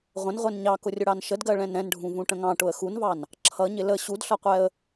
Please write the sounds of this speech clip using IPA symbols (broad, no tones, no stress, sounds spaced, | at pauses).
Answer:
ʁʷ ə̃ n ʁʷ ɛ n ɲ ɑ k ʊ rʲ ʊ ɽ ɑ n ʃ ə d ɡ ɜ ɭ ɛ̃ n ɾ ɛ̃ n ɖʱ ũ v ũ ʈ ə̃ ŋ ɑ̃ ʈ ʊ ə̯ x u n v ɑ n | ǁʰ ʌ ɲ ɪ l ə ɕ u d ɬ ʌ qʷ ɛ ə̯